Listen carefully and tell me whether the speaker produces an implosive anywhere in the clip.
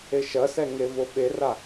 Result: yes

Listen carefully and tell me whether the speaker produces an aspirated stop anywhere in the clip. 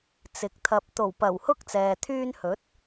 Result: yes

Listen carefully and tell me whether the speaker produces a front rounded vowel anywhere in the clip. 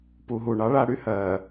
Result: yes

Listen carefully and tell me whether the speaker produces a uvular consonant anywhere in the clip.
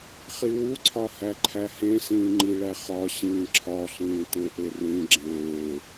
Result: yes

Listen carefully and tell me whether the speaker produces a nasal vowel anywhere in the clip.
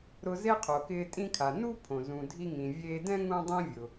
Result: yes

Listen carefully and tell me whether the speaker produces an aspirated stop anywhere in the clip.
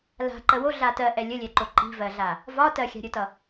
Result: no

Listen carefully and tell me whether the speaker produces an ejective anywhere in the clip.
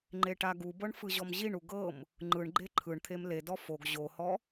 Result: no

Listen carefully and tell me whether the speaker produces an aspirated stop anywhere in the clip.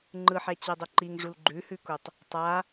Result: no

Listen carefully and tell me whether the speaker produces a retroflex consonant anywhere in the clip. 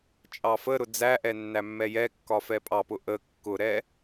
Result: no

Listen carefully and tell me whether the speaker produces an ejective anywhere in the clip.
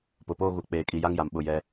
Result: yes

